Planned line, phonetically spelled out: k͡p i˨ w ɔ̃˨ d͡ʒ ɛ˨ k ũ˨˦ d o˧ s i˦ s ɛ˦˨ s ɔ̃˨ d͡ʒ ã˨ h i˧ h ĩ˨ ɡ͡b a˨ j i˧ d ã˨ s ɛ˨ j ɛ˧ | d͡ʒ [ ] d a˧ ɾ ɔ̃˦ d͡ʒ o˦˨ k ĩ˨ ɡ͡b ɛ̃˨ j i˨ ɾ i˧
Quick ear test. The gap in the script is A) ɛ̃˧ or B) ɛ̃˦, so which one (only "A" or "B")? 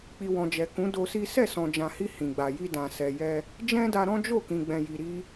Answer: B